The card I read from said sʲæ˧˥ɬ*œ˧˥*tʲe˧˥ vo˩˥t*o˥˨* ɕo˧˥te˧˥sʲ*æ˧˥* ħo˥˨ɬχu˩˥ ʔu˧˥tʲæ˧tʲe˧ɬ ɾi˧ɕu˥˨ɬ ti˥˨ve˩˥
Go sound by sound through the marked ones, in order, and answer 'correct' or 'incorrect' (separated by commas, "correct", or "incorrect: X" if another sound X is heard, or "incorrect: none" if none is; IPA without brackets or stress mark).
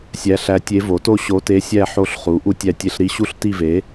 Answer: incorrect: æ˧˥, correct, incorrect: æ˥˨